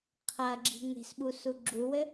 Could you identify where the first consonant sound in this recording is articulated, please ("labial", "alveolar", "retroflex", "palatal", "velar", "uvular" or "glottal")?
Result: uvular